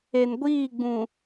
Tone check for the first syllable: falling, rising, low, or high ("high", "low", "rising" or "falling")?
low